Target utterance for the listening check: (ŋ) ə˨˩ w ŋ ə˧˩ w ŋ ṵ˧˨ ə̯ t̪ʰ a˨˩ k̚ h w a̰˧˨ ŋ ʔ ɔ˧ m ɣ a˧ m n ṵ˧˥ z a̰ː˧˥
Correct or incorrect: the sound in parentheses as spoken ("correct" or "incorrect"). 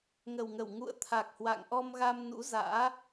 correct